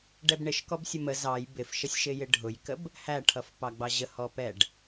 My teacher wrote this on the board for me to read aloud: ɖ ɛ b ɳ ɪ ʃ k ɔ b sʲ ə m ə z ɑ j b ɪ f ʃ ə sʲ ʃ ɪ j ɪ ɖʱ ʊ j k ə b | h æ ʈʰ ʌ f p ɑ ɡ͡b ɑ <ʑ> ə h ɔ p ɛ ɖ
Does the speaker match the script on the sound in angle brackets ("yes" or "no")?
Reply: yes